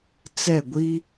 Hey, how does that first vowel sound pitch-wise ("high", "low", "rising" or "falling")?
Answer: falling